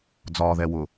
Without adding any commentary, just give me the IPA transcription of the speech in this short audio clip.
d͡z ɒː ð ɛ w ʊ

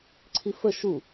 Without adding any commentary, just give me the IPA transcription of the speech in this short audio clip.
ǀʰ i f ə ʃ u

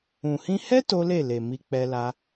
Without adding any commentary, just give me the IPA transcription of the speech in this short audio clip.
ũ˨ h ĩ˧ h ɛ˦ t o˦ l e˦˨ l e˨ m i˧ k͡p ɛ˧ l a˧

